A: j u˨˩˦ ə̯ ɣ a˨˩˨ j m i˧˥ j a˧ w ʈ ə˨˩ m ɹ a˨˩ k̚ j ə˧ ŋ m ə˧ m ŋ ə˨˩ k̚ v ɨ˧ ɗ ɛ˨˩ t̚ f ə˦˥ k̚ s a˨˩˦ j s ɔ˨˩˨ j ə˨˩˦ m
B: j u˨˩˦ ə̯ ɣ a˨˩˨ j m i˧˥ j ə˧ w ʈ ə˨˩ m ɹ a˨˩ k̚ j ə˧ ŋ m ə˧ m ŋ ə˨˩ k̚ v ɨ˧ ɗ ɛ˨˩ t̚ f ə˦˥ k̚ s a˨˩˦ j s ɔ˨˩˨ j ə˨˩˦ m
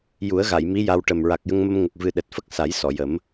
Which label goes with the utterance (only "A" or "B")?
A